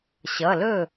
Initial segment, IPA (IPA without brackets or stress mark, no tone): ɕ